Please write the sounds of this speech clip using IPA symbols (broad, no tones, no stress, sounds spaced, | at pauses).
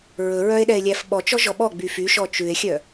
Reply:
ɹ ɵ ɹ œ e̯ ɗ ɛ e̯ lʲ æ f ɓ ɔ t͡ʃ ɔ ʒ ɔ ɓ ɔ ɡ͡b y f y ʃ ɔ t͡ʃ ʉ e̯ xʲ œ